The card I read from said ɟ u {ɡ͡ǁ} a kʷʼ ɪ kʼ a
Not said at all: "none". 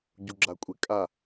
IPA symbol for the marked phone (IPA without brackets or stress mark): ɡ͡ǁ